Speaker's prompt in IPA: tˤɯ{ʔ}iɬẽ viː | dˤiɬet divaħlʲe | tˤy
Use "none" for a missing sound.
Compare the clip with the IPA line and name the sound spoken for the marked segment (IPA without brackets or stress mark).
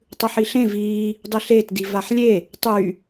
ħ